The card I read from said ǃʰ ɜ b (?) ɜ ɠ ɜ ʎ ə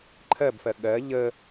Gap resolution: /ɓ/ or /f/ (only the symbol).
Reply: f